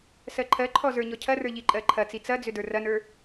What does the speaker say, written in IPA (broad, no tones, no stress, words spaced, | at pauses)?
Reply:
sɜǃʰɜǃʰɔ zə˞ɲɔcʰɐrə˞ ʎiǃʼɜǃʰɐt͡si t͡sɐd͡zʏ də˞rɐnə˞